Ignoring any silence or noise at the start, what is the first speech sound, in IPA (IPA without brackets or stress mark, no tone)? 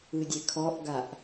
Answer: ɯ